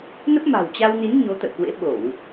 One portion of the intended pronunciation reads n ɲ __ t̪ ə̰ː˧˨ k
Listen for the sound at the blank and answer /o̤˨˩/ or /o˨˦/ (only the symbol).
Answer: o˨˦